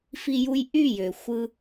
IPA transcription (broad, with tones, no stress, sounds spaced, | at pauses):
f i˧ j u˧ j ʔ y˥˩ j ø˩ xʷ ɯ˧